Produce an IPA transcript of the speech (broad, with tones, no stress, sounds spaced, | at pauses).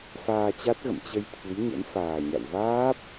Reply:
f aː˧ t͡ɕ a˦˥ t̚ ɣ ə̰˧˨ m t͡ɕ ə˧ j t̪ʰ ɨ˨˦ j ɲ ə̰˧˥ n f aː˨˩ ɲ a̰˧˨ w v aː˦˥ p̚